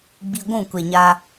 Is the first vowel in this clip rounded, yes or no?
no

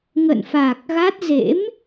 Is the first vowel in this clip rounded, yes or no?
no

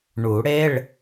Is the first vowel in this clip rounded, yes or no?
yes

